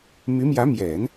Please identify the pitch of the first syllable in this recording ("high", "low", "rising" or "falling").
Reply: rising